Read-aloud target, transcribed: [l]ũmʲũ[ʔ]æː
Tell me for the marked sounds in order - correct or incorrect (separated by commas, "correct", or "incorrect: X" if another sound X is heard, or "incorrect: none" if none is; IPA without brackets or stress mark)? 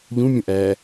incorrect: ʎ, correct